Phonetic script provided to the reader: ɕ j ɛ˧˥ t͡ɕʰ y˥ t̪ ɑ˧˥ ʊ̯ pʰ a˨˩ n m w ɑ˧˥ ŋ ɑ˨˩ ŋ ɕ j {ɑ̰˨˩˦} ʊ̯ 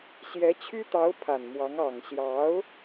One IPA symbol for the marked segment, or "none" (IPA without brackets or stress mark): ɑ˧˥